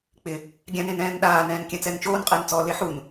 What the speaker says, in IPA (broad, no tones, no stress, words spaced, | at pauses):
k͡pɪ | ɡʲãnẽnɛ̃ːn ɗaːnɛ̃ːn kʲãt͡sɛnt͡ʃoːnqʼɪːn t͡sɔ leħun